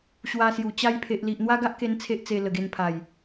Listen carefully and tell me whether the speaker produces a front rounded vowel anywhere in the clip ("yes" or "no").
no